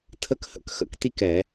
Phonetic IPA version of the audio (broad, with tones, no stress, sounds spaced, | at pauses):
tʰ ə˨˦ k h ə̰˨˦ k x ə̰˧˩˧ k t i˥˨ k ɛ˧˩˧